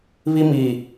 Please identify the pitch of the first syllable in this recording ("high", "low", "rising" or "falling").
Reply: high